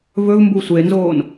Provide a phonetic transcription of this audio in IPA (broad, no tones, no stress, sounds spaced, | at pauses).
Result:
v ɵ v m b u sʷ e n z oː n